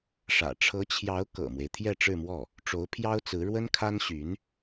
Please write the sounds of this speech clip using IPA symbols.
ʂ ä̰˨˩ ʈ͡ʂʰ ɤ˧˥ t͡ɕʰ j ɑ˧˥ ʊ̯ k ɤ̰˨˩ m w e˦ ɪ̯ t̪ʰ j ɛ˥˧ ʈ͡ʂ ɻ̩˥˧ m w ɔ˥˩ | ʈ͡ʂ o˧˥ ʊ̯ pʰ j ɑ˥ ʊ̯ t͡s ɹ̩˧˥ ɻ w ə˥ n kʰ a˥ n ɕ y˧˥ n

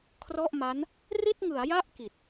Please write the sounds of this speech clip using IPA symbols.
kʰ r ɔ˥˩ ʔ m a˦˥ n | r i˥˩ t̚ ŋ ɯ˩˦ a̯ j a˥˩ ʔ k i˨˩ t̚

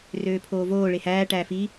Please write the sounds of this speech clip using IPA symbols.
r øː pʰ oː v oː ɭ e h æː ʈ æː f i

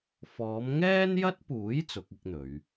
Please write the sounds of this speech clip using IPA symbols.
f ɔː˨˧ m ŋ ɛː˥ n j ɐ˥ t̚ p uː˨˥ j t͡s ʊ˨˥ k̚ ɪ˥ k̚ n̪ ɵ˨˧ ɥ

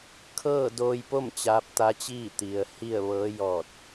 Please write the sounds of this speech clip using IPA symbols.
kʰ ɤː˥˨ d oː˧ j p o˥˨ m t͡ɕ aː˧˥ p̚ t̪ a˧˥ t͡ɕ iː˥˨ t̪ i˩ ə̯ h i˥˨ ə̯ ʋ ɤː˧˥ j ɔː˧˩ t̚

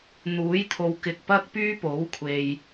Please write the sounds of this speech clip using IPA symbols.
n̪ uː˨˥ j t̪ʰ o˨ w k ɪ˨ k̚ p ɐ˥ k̚ p yː˥ p o˨˥ w kʷʰ e˨ j

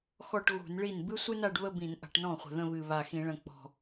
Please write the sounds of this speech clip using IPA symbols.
x ɔ˥˧ ʈ ɣ ṳ˧˩˧ n ɭ i˥˩ n b ɨ˥ sʷ ɨ˥ n a˥˧ ɖ β ə˥˧ b ĩ˧˩˧ n ʔ a̤˧˩˧ ʈ n ɔ̃˥˩ χʷ ə̤˨˩ ð ə̃˥˧ β ɨ˨˩ β a˨˩ x ĩ˧˩˧ ɭ ə̃˨˩ k͡p ɔ̤˨˩

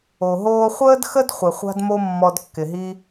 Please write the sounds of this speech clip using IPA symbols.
o˩ ɦ oː˧ χʷ əː˥ d x ə˥ d χʷ ɪ˩ χʷ a̤˥ d m o˥ mː ɔ˧ d kː ɪ˩ ɦ i˥

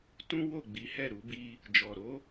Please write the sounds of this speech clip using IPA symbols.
t ũ˦ w o˦˨ ɡ͡b i˨˦ h ɛ˦˨ ɾ u˧ b i˧ | d͡ʒ ɔ˨ ɾ o˧

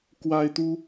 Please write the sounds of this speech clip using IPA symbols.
k w a˥ ɪ̯ t̪ u˥

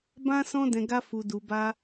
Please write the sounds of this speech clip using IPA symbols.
b ã˦ s ɔ̃˦ d ɛ̃˧ ɡ a˦ f u˧ d u˧ b a˧

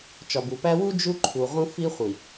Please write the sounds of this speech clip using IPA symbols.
t͡ʃ ɒ˨ b u˨ p æ˦ w u˦ d͡ʒ u˦ ǃʰ u˨ ʁ ũ˦ f i˦ χʷ i˨

